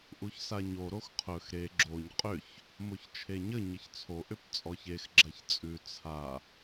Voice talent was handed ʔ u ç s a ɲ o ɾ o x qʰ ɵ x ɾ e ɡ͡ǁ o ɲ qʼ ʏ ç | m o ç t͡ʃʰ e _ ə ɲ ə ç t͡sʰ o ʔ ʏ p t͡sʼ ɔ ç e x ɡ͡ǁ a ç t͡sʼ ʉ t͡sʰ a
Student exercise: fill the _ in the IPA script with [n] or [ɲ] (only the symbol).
ɲ